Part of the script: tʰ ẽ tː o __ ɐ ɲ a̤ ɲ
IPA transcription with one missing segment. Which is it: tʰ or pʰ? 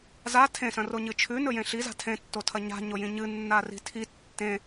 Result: tʰ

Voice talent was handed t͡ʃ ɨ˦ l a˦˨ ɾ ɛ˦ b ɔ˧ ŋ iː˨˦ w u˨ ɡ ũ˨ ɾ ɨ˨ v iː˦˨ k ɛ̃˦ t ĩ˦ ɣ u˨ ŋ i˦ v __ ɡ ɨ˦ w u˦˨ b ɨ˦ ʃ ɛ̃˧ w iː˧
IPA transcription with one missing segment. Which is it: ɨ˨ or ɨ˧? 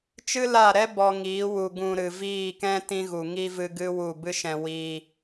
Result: ɨ˧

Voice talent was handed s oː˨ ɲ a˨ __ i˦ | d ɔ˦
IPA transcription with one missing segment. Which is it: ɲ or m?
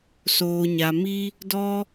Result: m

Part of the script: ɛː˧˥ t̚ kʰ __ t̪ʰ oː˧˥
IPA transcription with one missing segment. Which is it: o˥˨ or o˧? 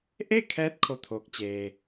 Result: o˥˨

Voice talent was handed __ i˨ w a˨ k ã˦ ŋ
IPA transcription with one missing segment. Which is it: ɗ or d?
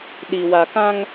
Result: ɗ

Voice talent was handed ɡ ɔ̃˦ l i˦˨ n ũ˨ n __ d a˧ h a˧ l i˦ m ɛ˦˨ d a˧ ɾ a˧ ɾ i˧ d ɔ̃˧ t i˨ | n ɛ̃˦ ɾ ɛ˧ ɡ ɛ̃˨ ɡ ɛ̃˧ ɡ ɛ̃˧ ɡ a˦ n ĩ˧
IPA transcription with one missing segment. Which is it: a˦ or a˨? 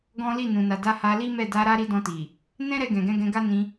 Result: a˨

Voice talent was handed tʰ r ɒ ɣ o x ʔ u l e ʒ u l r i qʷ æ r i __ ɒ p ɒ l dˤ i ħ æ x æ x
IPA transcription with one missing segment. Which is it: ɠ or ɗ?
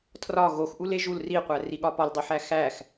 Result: ɠ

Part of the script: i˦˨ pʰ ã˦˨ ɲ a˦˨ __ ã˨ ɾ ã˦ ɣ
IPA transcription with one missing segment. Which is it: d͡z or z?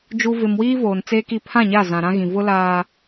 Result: z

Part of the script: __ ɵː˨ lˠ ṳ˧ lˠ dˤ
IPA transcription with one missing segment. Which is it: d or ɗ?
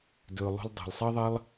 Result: d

